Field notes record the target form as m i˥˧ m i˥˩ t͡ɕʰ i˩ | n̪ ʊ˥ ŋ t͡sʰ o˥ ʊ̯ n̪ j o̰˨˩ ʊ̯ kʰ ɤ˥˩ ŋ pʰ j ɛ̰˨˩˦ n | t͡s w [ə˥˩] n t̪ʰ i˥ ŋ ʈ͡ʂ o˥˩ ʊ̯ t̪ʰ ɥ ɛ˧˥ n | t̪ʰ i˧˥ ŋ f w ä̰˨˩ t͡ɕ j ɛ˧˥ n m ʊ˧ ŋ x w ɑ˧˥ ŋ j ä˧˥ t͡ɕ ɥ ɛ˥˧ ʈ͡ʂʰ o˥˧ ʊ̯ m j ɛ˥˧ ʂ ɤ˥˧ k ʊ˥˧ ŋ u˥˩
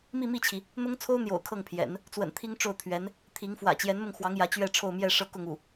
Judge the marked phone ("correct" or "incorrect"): incorrect